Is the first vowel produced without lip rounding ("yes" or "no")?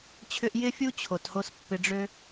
no